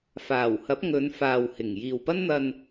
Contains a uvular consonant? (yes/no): no